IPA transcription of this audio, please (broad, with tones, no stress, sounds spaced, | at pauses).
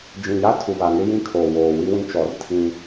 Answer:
d͡ʒ ĩ˨ j a˦ tʰ u˨ β a˨ ŋ ɪ˦ j ĩ˦ kʰ o˨ w oː˨ w i˦ w ĩ˦ t͡ʃ ɔ˨˦ r tʰ ĩ˦